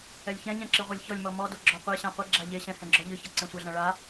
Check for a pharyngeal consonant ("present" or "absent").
absent